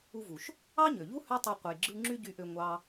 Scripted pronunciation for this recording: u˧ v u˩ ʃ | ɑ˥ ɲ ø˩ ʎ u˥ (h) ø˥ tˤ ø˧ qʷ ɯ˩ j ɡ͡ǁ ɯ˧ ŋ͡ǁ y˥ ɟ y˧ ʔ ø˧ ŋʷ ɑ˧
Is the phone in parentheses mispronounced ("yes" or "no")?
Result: no